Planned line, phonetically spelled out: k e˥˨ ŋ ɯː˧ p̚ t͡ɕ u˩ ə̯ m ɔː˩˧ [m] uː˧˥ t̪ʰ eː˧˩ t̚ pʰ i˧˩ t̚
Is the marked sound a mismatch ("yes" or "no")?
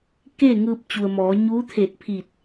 yes